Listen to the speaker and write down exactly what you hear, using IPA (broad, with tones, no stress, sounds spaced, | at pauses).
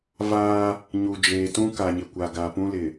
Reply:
v aː˦ | ɲ u˨ d͡ʒ eː˨ t ũ˦ k a˨ ɲ ɪ˨ kʷ a˨ ɡ a˨ p ũ˦ l ɪ˨